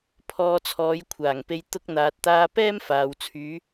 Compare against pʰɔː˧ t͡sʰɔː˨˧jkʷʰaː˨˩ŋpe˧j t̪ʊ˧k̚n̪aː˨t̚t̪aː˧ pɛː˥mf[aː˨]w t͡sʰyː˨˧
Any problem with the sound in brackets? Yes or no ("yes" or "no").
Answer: no